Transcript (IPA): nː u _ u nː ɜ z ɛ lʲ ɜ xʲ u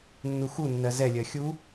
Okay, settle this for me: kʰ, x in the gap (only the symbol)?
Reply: x